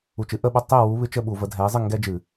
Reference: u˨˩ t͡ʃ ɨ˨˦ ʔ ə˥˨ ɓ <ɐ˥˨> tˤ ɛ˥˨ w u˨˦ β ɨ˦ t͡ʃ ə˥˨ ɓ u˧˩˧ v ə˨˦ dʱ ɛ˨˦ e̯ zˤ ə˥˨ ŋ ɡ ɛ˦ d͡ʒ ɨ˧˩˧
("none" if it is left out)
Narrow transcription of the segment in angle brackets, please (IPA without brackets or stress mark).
ɐ˥˨